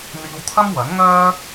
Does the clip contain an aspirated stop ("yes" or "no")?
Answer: yes